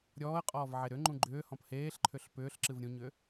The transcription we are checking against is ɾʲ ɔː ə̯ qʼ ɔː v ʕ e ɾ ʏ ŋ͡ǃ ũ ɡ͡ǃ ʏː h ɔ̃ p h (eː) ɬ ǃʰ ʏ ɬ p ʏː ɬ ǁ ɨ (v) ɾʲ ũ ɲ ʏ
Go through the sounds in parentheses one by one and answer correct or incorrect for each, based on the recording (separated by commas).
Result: correct, correct